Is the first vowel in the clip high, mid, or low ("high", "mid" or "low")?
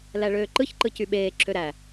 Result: low